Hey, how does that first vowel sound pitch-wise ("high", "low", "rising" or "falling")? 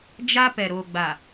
high